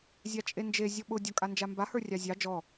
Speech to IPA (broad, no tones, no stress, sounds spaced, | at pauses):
zʲ a t͡ʃʼ e n d͡ʒ e zʲ ɔ ɓ ʊ dʲ ɔ kʼ a n d͡ʒ a m b a h ə˞ rʲ ɑ zʲ ɑ d͡ʒ ɔ